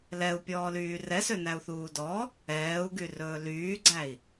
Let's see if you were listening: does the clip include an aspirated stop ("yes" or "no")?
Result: no